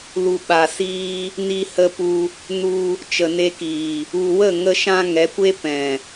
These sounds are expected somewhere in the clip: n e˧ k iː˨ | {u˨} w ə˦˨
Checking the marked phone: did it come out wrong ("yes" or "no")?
no